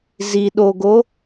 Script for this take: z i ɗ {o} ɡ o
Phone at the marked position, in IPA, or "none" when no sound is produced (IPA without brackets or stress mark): o